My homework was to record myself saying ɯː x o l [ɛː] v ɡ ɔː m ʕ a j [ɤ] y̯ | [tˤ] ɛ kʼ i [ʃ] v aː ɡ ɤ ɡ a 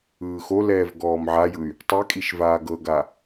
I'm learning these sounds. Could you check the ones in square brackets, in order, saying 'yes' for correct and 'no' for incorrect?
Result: yes, no, yes, yes

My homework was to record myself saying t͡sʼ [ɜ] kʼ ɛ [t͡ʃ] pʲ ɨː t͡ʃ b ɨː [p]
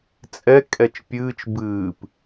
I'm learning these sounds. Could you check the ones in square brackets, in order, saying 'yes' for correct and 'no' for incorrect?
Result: no, yes, yes

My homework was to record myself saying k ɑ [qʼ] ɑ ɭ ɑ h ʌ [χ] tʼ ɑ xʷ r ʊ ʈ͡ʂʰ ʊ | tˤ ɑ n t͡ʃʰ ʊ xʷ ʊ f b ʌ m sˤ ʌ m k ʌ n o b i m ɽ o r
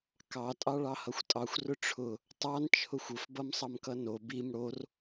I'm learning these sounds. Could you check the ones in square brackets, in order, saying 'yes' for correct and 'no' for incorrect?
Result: no, no

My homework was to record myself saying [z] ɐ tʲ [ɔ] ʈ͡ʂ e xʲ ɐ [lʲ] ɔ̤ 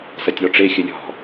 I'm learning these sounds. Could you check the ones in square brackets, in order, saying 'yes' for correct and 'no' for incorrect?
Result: no, yes, yes

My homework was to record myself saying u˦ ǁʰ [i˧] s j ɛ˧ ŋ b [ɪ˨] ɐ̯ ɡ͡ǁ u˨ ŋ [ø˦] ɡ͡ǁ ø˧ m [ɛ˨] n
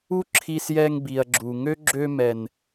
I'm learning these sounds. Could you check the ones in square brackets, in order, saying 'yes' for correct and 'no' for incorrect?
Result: yes, no, yes, yes

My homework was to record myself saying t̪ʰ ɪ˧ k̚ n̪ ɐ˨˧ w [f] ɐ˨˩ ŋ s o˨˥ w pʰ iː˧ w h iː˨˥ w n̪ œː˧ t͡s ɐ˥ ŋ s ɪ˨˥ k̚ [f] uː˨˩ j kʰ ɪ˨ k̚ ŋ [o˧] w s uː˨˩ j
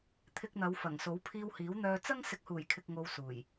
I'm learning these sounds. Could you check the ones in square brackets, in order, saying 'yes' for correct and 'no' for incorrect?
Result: yes, no, yes

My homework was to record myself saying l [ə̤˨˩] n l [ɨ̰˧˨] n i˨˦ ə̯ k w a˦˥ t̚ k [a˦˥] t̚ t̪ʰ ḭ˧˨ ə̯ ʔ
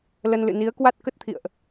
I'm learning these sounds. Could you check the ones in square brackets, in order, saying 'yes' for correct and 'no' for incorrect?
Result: no, yes, no

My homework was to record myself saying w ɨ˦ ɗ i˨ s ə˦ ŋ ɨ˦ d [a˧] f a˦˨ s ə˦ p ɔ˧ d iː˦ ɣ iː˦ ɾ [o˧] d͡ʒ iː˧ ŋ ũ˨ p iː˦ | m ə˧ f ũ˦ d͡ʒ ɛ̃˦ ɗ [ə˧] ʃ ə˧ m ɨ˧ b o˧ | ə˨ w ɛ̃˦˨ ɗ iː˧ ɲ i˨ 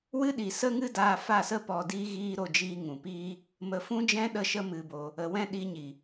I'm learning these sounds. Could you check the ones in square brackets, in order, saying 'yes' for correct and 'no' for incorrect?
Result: yes, yes, yes

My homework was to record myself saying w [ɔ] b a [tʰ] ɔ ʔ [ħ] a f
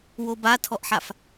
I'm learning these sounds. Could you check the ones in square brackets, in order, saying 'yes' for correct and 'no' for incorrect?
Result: no, yes, yes

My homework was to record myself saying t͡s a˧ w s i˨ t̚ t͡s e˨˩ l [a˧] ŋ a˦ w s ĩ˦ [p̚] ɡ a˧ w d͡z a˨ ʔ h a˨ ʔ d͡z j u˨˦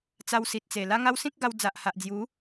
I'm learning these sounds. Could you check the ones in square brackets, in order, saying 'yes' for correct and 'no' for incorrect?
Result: no, no

